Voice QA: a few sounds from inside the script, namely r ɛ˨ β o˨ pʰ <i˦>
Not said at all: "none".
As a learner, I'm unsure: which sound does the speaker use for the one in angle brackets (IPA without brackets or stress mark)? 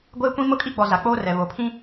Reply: ĩ˦